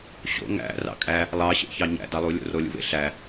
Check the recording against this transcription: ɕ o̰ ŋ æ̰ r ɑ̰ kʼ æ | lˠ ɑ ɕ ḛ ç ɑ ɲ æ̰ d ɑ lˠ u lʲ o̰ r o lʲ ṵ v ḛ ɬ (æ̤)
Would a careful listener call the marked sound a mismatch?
yes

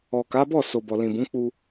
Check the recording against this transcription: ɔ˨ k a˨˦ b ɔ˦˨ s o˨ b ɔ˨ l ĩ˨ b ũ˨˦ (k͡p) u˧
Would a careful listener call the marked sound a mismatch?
no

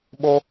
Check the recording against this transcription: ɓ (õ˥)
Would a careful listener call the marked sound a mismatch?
yes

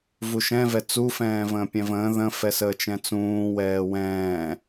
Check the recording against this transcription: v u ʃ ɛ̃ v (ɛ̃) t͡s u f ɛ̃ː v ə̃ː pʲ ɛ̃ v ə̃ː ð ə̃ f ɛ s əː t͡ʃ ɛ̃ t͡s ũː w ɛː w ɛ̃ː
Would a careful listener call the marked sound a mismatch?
yes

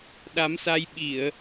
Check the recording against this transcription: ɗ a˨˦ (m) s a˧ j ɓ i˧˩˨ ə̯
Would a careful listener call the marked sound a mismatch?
no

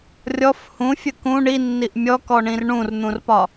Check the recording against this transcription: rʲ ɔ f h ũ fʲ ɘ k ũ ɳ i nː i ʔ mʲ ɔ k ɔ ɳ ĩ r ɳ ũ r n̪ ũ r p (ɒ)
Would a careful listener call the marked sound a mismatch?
no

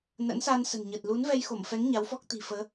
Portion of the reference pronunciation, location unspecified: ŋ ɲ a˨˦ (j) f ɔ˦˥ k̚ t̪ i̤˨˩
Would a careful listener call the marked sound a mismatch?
yes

